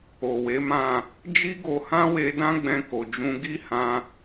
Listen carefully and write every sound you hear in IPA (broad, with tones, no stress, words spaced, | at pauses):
o˨we˨˦mã˦˨ | d͡ʒi˦ɡo˧hã˦we˧ dã˦ɡ͡bɛ̃˧ko˨d͡ʒũ˧ ɡi˦hã˧